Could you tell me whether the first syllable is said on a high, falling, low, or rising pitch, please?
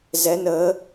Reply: rising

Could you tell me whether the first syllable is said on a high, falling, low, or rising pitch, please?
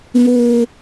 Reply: high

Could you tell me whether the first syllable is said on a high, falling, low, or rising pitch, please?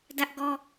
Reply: high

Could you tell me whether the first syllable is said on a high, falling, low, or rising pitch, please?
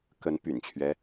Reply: rising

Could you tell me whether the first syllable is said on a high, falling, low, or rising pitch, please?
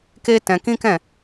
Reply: high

